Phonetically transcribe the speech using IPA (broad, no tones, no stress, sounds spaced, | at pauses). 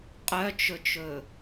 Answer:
qʼ œ t͡ʃ ɵ t͡ʃ ɵ